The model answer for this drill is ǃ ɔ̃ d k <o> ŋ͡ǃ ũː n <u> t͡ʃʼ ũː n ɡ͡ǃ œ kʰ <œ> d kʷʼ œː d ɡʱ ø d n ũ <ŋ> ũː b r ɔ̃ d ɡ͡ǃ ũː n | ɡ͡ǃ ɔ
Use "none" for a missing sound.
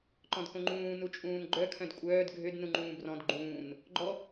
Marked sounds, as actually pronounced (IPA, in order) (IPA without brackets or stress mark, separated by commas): õ, u, œ̃, ŋ͡ǃ